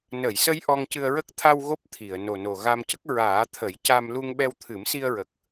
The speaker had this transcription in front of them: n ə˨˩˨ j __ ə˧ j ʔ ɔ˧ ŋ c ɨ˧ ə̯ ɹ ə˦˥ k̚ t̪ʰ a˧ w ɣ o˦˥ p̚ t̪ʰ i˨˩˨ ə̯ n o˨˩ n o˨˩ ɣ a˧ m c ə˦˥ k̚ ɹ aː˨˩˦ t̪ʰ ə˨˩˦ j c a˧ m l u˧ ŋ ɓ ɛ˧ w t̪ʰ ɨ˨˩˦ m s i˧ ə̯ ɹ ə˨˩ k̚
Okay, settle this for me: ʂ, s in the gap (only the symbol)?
s